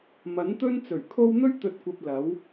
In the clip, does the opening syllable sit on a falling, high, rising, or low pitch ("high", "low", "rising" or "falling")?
rising